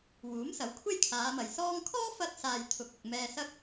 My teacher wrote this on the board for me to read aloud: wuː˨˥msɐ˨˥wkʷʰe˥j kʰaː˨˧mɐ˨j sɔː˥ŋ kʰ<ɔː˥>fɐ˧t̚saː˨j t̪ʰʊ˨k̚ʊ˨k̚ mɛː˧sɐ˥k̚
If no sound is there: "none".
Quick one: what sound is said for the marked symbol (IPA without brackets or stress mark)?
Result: ɔː˥